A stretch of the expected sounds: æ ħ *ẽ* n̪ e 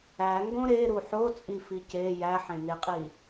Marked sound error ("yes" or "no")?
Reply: no